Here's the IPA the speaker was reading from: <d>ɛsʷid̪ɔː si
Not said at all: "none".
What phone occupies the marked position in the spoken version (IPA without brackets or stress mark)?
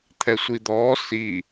t̪ʰ